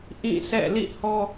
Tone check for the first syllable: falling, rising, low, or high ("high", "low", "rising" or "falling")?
falling